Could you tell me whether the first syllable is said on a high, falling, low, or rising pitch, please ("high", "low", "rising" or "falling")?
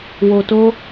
low